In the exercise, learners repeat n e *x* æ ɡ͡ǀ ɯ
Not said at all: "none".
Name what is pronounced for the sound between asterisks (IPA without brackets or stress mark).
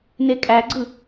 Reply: kʼ